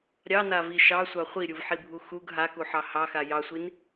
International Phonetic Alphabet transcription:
ɾʲ ɑ n a v i ʃ ɑ sʷ ɑ χʷ i ɾʲ u v ħ i bʱ u x u ɡ ɦ a k u ħ ɑ h ɑ x a j ɑ sʷ i n

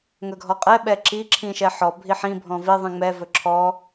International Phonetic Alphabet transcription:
ŋ ɵ ɡʱ ɔ qʼ ɛ ɓ ɛ ǁ i ǁʰ ĩ ʃ ɛ ħ ɔ bʱ i ħ ĩ bʱ ɔ̃ v i ðˤ ĩ ŋ͡m ɛ v ɵ ǁʰ ɔ

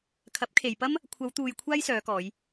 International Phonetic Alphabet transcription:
kʰ ɐ˨˥ p̚ kʰ e˨ j p ɐ˥ m | kʷʰ ɐ˨˧ w t̪ uː˨ j kʷʰ aː˥ j s œː˨˧ k ɔː˨˧ j

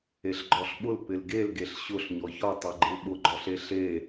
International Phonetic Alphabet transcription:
e ɬ ɡ͡ǃ ɔ ɬ ɓ ʊ l p ɪ l ɡ e l ɡ e ɬ ɕ ʊ ɬ ɲ ɔ ç ɔ tˤ œ ɡ͡ǃ ɪ l ɓ ʊ ɡ͡ǃ ɔ ɬ e ɬ e

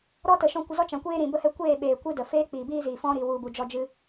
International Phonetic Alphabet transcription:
ɾ ɔ˦ t ə˨ ʃ ɔ̃˧ kʷ ə˧ z ɔ˦ t͡ʃ ã˨ kʷ eː˦ ɾ ĩ˨ b ə˦ h ɛ˦ kʷ eː˦˨ ɓ eː˨ kʷ ɨ˦ d ə˨ f eː˦ k͡p iː˨ b iː˦ z iː˨ f ɔ̃˦ ɾ i˨ w u˨ b u˨ d͡ʒ ɔ˦ d͡ʒ ɨ˦

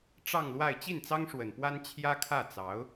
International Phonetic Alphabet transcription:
ʈ͡ʂ ɑ˥˧ ŋ l w a˥˧ ɪ̯ t͡ɕ i˥˩ n t͡s ɑ˥ ŋ ʂ w ə˨˩ n p w a˥ n t͡ɕʰ j ä˥ kʰ ä˥˩ t͡s ɑ˧˥ ʊ̯

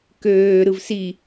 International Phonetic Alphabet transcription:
k øː ɾ ɯ v s i

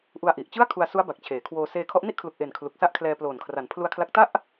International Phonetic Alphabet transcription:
ʔ u˧ a̯ ʔ i˨˩ ʔ t͡ɕ ɯ˥˩ a̯ kʰ u˧ a̯ s u˦˥ a̯ b a˨˩ k̚ t͡ɕʰ eː˩˦ kʰ w oː˧ s eː˧ kʰ ɔ˦˥ ʔ n i˥˩ ʔ kʰ l u˨˩ k̚ ʔ e˨˩ n kʰ l u˨˩ k̚ s a˥˩ ʔ kʰ l ɛː˧ p l oː˨˩ n kʰ r a˩˦ n pʰ l u˧ a̯ kʰ l a˦˥ k̚ t a˥˩ ʔ

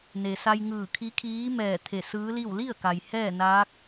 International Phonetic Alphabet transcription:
n e˩ s a˧ j ŋ ɯː˧˩ kʰ i˧˥ kʰ iː˧˥ m ɛː˧˩ t̪ʰ e˧˩ s ɯː˧˥ l i˥˨ w l i˥˨ ə̯ k a˩ j h ɛː˥˨ n aː˧˥ k̚

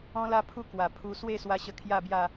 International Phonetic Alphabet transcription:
ɔ̃˦ l a˦ pʰ u˦ k w a˨˩ pʰ u˧ s w e˥˧ s w a˧ ɕ ə˧ kʰ j a˥˧ b j a˥˧

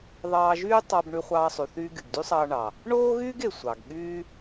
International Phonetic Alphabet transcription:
ðˤ ɑː˧ ʒ yː˥ tˤ ɑ˧ b ɳ y˧ χʷ ɑː˧ sˤ y˩ θ yː˧ ɡ y˩ ɡ d y˥ sˤ ɑː˧ ɳ ɑ˩ | ɳ oː˥ ɣ yː˥ ɡ e˩ sʷ ɑ˩ ɡ ɠ yː˥

